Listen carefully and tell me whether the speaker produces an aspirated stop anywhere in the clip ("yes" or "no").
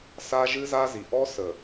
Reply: no